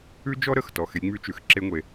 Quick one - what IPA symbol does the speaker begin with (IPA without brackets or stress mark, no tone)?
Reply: ʉ